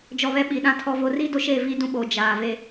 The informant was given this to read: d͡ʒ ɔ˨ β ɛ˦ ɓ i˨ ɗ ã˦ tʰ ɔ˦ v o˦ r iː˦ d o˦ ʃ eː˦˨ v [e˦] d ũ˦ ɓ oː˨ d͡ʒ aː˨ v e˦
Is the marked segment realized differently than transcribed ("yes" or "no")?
yes